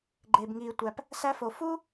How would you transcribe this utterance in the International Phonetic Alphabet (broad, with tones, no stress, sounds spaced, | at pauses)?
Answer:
ɡ͡ǃ eː˧ b ŋ iː˧ tʷ æ˧ p | s æ˥ f o˧ f u˥